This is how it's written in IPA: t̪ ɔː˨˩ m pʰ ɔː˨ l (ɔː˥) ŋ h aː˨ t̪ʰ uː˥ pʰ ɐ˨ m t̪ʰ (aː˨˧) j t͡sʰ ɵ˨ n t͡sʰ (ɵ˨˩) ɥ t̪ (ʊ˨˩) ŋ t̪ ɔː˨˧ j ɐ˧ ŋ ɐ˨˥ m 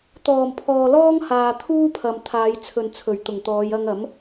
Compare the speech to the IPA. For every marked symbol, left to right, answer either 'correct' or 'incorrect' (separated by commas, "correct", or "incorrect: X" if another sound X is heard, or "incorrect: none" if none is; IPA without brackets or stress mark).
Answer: correct, correct, correct, correct